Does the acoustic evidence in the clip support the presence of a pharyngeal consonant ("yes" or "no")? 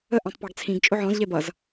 yes